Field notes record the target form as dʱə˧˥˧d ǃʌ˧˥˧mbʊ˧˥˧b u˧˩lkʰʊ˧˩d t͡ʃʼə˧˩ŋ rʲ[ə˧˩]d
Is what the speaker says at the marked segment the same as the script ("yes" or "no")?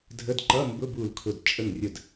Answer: yes